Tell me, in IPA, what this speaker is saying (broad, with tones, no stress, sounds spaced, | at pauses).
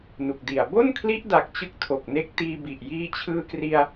n u˨˩ k̚ d i˨˩ a̯ b o˥˩ n kʰ l i˦˥ ʔ d a˨˩ k̚ t͡ɕ ɯ˦˥ k̚ tʰ o˨˩ k̚ n e˦˥ k̚ t iː˧ b i˨˩ ʔ j iː˧ t͡ɕʰ ɯː˧ k r i˧ a̯